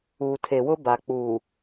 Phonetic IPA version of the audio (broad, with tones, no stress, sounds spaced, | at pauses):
uː˨ tʰ e˨ w ʊ˦ b a˨ k͡p uː˨